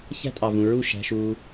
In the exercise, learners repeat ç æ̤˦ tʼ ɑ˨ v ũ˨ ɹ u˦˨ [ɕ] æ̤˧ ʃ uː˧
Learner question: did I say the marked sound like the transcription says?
no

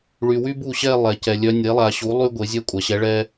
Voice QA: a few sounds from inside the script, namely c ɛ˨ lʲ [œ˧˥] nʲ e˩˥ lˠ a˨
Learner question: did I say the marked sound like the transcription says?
yes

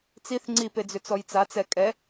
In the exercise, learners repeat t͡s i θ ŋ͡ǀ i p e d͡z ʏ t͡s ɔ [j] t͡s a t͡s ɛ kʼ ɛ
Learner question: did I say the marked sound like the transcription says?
yes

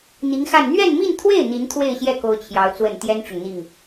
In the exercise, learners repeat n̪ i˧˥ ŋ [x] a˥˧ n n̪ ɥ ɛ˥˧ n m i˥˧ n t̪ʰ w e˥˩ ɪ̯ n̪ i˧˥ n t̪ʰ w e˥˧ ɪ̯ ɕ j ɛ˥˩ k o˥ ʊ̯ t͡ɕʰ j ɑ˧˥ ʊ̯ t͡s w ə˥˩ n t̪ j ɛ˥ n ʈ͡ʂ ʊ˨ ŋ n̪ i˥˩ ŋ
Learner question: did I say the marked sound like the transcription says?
yes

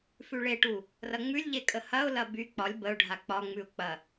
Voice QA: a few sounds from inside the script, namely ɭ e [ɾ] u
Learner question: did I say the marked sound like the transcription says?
no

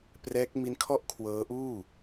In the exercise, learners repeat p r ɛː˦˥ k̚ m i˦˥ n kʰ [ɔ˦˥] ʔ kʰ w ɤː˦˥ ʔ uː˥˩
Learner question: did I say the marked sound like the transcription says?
no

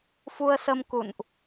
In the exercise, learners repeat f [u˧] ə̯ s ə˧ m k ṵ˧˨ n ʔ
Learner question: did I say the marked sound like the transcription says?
yes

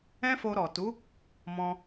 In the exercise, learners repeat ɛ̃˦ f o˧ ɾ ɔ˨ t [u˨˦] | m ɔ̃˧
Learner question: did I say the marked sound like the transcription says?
yes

